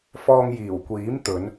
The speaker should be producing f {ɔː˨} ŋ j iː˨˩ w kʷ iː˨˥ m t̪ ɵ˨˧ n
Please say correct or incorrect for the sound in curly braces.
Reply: correct